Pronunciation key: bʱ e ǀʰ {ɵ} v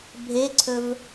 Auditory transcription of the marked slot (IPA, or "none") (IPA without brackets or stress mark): ɵ